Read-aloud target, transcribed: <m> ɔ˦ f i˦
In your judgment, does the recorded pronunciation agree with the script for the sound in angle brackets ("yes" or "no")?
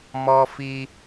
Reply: yes